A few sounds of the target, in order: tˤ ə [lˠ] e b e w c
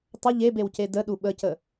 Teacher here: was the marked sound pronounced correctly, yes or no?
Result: no